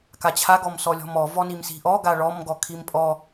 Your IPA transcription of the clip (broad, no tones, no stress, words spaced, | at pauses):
kat͡ɕʰa ɡɔmsɔlʲɔ̤mɔ vɔnimsi̤ʔɔ ɡaɭɔm ɡɔkʰimpʼɔ